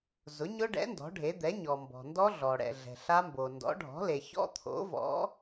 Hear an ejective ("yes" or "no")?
no